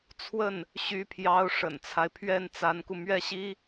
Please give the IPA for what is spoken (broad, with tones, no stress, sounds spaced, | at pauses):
t͡sʰ w ə˥˩ n | ɕ y˧˥ pʰ j ɑ˧˥ ʊ̯ ʂ ə̰˨˩ n t͡sʰ a˦ ɪ̯ pʰ ɥ ɛ˥˩ n t͡s a˧˥ n k u˧ m ɥ ɛ˥˩ ɕ i˥